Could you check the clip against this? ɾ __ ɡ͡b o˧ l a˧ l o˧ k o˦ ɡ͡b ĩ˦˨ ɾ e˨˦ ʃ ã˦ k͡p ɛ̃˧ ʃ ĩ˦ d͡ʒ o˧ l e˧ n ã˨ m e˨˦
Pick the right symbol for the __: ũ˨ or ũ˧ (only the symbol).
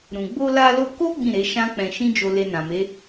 ũ˨